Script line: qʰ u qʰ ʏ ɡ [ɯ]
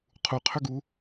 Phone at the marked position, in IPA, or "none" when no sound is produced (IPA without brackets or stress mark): u